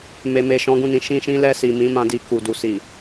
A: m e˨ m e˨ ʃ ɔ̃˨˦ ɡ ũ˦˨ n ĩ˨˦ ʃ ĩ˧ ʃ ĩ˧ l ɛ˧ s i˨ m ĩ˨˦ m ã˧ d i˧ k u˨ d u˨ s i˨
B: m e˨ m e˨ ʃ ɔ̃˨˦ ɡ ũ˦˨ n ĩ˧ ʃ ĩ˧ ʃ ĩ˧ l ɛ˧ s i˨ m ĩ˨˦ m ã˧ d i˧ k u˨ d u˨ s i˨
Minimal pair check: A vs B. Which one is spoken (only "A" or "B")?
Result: A